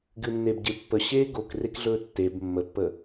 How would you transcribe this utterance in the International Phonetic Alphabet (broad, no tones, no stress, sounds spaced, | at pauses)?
ɡ ɨ nː e b ɟ e pː ə ɕ eː ɡ o k r e k ɮ ɵː tː e b mː ə pː ə